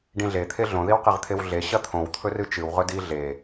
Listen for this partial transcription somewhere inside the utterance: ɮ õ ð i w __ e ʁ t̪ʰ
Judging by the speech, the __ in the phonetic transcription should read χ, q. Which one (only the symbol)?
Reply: q